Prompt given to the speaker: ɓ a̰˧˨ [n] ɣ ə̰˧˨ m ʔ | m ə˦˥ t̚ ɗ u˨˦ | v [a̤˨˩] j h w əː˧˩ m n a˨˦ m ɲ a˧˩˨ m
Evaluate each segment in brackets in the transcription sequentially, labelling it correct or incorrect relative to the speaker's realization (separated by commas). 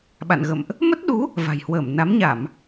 correct, correct